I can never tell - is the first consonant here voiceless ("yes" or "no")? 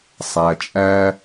yes